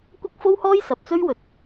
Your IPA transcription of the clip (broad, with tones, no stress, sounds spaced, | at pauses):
kʷ ɐ˥ k̚ f o˥ w h ɔː˥ j s ɐ˨ p̚ t͡s ɵ˥ ɥ w ɵ˨˥ t̚